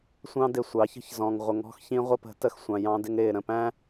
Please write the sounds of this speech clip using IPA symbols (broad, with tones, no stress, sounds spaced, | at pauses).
sʷ ɑ̃˦ d ɪ˨ sʷ ɑ˨˦ ç ə̤˦ ç z ɔ̃˨ ŋ ʁʷ ə˨ ŋ ɔ̤˦ x ç ĩ˦ ʁʷ ə˦ p ə̤˨˦ t ə˦˨ x sʷ ɑ̃˨ j ɑ̃˦ d ɪ˦ ŋ ɾ ɪː˨ ɾ ə̃˦ p æ̃˦